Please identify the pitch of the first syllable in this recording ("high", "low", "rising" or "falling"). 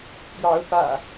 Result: rising